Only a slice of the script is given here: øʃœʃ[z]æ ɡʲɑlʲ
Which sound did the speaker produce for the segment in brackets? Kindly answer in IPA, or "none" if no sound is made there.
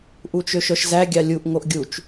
z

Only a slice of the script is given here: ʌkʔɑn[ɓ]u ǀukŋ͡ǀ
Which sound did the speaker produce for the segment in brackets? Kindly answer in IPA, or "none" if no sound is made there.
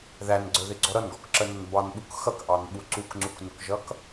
ɓ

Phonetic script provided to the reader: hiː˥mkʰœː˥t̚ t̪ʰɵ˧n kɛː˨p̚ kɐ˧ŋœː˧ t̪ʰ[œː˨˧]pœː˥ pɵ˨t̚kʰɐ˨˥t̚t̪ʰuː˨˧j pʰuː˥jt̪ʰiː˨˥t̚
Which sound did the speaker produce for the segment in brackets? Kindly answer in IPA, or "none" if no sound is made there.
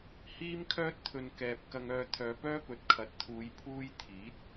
œː˨˧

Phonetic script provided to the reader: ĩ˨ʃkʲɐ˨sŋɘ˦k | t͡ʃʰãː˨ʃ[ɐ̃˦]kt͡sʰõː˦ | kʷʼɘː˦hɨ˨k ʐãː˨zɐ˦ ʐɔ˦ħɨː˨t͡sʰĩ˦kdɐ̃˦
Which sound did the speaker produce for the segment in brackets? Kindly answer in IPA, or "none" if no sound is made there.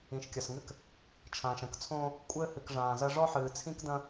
ɐ̃˦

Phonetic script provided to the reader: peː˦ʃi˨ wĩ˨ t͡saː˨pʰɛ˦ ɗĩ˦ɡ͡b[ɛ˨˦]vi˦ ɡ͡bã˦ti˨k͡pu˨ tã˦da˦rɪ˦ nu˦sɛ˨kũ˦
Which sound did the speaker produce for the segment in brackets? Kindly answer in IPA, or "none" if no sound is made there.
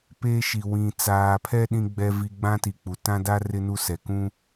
ɛ˦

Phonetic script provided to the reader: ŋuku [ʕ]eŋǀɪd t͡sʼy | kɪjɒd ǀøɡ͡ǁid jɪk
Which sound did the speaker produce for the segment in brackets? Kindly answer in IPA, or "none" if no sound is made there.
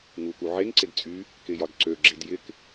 ʕ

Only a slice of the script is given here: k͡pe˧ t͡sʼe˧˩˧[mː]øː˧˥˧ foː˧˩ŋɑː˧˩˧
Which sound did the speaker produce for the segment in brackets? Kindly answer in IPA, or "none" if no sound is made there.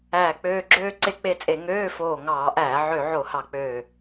ŋ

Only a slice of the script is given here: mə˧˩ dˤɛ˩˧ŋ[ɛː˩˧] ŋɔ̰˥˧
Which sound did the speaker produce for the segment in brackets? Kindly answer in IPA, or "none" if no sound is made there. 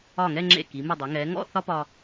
ɛː˩˧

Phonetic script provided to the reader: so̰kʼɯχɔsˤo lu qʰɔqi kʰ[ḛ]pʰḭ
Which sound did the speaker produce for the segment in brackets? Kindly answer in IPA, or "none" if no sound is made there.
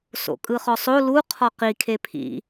e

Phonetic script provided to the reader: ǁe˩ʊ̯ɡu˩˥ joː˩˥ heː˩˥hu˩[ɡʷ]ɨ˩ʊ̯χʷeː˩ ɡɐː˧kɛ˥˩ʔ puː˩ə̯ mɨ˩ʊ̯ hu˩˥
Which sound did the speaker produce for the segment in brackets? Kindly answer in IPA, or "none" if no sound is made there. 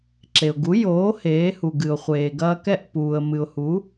ɡ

